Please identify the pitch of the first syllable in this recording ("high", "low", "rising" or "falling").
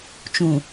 low